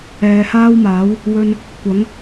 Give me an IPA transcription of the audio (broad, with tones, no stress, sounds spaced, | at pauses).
ɛː˨ h aː˥ w m aː˨˥ w | w ɵ˧ n | kʷ ɐ˨˥ ŋ